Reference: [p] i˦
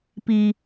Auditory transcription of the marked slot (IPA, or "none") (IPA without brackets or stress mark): p